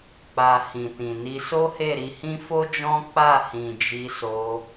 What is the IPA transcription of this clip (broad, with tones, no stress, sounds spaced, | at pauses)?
k͡p a˨ h ĩ˨ t ĩ˨ n i˧ s o˦ h e˦˨ ɾ i˧ h ĩ˦ f o˦ d͡ʒ ɔ̃˦ k͡p a˦˨ h ĩ˨ d͡ʒ i˧ s o˧